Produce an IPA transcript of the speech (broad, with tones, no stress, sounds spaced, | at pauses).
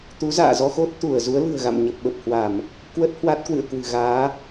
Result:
t̪ u˨˦ z a̰ː˧˨ z ɔ˧ x o˦˥ t̚ t̪ u˧˩ ə̯ z u˨˦ ə̯ l ɨ̤˨˩ ə̯ ɣ a̰˧˨ m ɲ ə˨˩ p̚ ɓ ə˨˩ p̚ h w a˧˩˨ m | k w ə˦˥ t̚ h w a˦˥ t̚ k w ɨ̰˧˨ ə̯ k w ɨ̤˨˩ ɣ aː˨˦